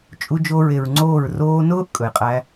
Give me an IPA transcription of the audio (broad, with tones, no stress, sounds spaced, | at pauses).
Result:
t͡ʃʼ u˧ d͡ʒ o˧ ɹ e˨ ɹ ŋ͡ǀ oː˦˨ ɹ r oː˧ n ʊː˦ ʔ kʼ ɵ˨ j qʼ æ˧